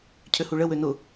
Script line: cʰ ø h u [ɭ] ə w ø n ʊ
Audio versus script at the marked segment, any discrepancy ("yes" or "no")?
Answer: no